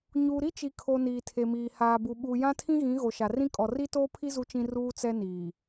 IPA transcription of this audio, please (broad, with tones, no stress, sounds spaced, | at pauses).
ɲ uː˨ ɾ i˦ t͡ʃ i˨ kʰ o˨ n iː˨ tʰ e˨ m iː˨ h aː˨ b u˨ ɓ uː˨ j ã˦ tʰ ĩ˦ ɣ ĩ˨˦ ɣ o˨ ʃ a˨ r ĩ˦ kʼ ɔ˨ r i˦ t oː˦ pʰ i˦ z u˦ t͡ʃ ĩ˦ r uː˦ t͡s ɛ˦ n iː˨